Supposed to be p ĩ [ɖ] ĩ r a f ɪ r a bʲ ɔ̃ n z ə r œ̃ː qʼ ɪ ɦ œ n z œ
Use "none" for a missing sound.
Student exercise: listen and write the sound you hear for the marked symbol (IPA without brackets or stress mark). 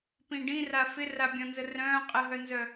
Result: ɖ